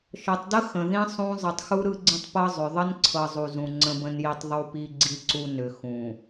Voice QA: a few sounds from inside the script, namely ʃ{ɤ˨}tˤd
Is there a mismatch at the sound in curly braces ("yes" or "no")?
no